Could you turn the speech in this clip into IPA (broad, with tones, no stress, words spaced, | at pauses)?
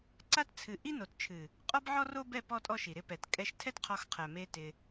ǀa˦tt͡sʰɨ˨ ʔi˦no˨tt͡ʃʰɨ˨ | qʼɔ˦bʕɔ˦ro˦ bɛ˦˨ pɔ˦tʼɔ˦ʃi˨ ɾɪ˧pɛ˨t kʼɛ˧ʃtʰɛ˦tqʰɔ˧xqʰɛ˨ me˧ tɪ˧